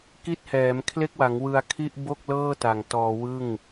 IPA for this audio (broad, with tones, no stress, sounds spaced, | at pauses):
k i˥˩ t̚ h ɛː˩˦ m kʰ l e˥˩ k̚ w a˩˦ ŋ w ɯ˧ a̯ kʰ i˥˩ ʔ b o˥˩ k̚ l ɤː˥˩ t a˨˩ ŋ t ɔː˧ w ɯ˥˩ ŋ